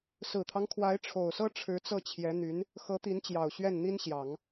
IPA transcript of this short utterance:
s ɹ̩˨˩ t̪ʰ ɑ˦ ŋ kʰ w a˧˥ ɪ̯ ʈ͡ʂʰ o˨˩ ʊ̯ s ɤ˥ ʈ͡ʂʰ ɻ̩˧˥ t͡s ɤ˥˩ t͡ɕʰ j ɛ˧˥ n̪ y˧˥ n | x ɤ˧˥ t̪ i˧˥ n t͡ɕ j ɑ˨˩ ʊ̯ ɕ ɥ ɛ˥˩ n n̪ i˥ n ɕ j ɑ˨˩˦ ŋ

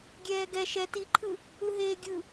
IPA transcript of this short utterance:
ɡʲ ɛː ɡ ɛ ʃ ɛ t i ǃʰ ɯ | ɯ ɦ eː ɡʲ ɯ

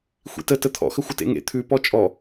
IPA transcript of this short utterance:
xʷ ḭ t ə t ə t̪ʰ ɔ̰ x ə xʷ ə t ḛ ŋ ḛ t̪ʰ ʉ p ɔ t͡ʃʼ ɔ

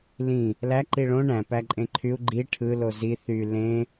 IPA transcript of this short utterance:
l ĩ | l æ ǃ i ɭ õ ɳ æ̃ p æ ǃʼ ẽ ǃʰ y u̯ ɡ͡ǃ i ʈʰ ɯ l o z i θ y l ẽ

